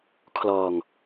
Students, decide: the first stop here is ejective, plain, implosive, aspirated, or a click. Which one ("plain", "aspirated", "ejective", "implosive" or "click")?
aspirated